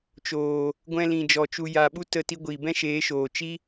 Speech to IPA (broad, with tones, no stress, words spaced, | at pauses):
t͡ʃoː˨ | ɡʷɛ̃˧lĩ˨d͡ʒɔ˨ t͡ʃu˨ja˨ɓu˧ tə˧ti˧ ɡʷiː˨bɛ̃˦ʃeː˨˦ ʃoː˨ t͡ʃi˦